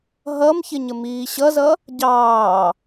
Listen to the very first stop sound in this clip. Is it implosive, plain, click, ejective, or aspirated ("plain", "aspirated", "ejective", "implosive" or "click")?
plain